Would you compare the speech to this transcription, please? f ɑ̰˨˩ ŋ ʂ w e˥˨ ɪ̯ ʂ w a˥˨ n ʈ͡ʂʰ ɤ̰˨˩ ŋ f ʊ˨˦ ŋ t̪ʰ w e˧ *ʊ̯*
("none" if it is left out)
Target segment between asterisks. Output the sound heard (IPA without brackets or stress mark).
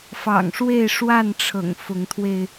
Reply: ɪ̯